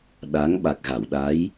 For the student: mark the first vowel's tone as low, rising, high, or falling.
rising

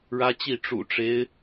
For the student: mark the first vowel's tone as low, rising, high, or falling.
high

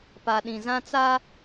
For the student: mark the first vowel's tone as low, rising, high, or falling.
low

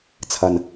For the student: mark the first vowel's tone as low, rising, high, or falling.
low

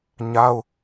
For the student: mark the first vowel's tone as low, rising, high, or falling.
high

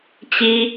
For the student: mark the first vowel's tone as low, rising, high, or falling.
high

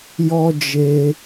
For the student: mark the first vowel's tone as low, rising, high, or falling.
high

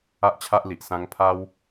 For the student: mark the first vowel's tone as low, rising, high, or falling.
high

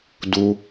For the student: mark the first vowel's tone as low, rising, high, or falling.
high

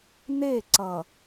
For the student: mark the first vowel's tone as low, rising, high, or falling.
falling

